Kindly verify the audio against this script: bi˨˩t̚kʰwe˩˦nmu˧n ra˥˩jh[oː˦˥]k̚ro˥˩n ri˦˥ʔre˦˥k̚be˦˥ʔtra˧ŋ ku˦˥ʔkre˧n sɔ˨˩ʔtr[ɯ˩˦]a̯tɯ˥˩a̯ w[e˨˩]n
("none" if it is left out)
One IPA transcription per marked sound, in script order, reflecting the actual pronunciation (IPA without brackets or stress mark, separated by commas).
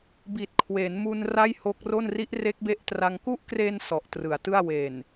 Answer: o˦˥, ɯ˩˦, e˨˩